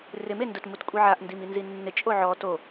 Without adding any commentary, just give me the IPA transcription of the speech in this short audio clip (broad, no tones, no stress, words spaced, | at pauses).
rɪmendʊt mutkʷʼiʕaʔ ndiminzinːɪ t͡ʃʼoʕɔ to